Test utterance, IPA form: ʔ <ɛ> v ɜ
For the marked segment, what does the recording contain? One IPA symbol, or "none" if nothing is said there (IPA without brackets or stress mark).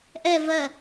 ɛ